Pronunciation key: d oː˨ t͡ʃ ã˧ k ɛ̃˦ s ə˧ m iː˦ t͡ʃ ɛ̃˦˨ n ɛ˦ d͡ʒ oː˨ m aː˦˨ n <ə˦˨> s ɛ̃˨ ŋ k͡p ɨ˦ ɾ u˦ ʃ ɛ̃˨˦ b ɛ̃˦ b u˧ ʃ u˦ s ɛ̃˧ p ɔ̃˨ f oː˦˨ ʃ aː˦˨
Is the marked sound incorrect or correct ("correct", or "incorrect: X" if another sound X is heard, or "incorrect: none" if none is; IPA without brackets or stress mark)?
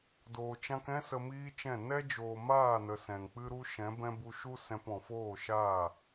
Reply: incorrect: ə˨